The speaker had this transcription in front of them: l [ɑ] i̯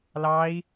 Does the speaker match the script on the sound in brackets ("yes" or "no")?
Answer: yes